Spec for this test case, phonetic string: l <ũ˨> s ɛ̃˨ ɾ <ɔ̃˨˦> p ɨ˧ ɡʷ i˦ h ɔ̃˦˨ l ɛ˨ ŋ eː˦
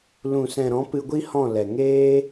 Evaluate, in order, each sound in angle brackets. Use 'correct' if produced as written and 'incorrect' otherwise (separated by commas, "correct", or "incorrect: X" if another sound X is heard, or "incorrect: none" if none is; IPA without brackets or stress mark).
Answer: correct, correct